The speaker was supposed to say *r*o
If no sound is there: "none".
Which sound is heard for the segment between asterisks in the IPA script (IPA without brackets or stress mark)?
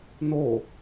n